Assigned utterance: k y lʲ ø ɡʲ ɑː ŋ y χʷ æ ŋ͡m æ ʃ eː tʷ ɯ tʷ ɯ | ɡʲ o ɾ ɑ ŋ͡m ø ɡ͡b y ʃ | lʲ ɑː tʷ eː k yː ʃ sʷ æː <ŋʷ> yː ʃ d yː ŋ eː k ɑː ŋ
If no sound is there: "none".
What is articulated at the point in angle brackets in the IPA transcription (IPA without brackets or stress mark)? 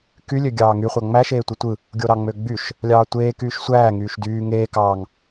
ŋ